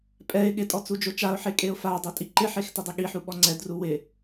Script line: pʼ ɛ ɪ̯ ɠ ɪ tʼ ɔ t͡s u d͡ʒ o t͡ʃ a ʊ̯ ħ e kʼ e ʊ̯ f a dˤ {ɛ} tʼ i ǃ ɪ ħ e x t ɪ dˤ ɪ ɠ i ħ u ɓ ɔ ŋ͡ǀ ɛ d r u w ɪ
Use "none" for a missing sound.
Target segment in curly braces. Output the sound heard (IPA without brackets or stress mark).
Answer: ɛ